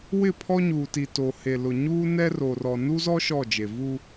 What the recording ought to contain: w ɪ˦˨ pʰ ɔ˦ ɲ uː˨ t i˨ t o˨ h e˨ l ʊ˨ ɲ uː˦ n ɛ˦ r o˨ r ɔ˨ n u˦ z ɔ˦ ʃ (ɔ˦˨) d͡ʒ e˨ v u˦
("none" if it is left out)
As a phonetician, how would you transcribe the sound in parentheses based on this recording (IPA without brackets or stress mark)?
ɔ˦˨